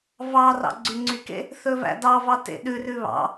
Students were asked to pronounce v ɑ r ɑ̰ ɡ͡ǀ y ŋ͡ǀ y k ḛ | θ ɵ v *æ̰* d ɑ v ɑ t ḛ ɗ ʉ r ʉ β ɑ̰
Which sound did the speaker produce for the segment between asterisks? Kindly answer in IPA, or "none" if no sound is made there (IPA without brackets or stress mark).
æ̰